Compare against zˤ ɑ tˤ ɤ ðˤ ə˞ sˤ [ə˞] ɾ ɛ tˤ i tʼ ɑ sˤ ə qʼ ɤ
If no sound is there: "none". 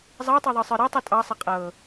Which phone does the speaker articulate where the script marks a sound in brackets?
ə˞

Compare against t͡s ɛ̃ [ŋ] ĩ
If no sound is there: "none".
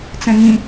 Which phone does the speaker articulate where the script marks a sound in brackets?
ŋ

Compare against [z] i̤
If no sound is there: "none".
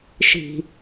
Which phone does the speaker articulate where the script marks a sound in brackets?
ʃ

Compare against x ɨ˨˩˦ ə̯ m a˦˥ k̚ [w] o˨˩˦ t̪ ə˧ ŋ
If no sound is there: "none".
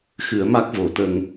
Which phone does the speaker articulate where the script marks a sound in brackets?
v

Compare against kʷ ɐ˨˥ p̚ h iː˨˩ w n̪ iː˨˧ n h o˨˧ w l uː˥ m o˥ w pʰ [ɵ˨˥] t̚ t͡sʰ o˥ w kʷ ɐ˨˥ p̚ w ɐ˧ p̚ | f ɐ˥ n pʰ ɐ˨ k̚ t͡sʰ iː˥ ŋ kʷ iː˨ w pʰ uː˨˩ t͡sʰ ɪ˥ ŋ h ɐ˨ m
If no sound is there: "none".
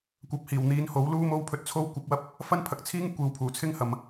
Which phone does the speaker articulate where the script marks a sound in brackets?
ɵ˧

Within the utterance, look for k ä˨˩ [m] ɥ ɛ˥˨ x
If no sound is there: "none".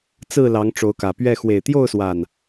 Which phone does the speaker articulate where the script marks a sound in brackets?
p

